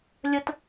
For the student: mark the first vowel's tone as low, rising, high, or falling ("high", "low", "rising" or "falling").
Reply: high